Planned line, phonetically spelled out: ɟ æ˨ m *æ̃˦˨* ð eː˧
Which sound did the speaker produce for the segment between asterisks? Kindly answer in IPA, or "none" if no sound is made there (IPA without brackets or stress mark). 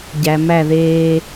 æ˦˨